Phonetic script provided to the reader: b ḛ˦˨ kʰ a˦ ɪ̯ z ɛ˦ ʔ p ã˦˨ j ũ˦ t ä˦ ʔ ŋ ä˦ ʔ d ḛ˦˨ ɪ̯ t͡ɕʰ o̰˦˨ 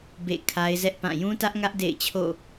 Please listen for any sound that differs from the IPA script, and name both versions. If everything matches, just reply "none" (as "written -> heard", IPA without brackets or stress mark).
none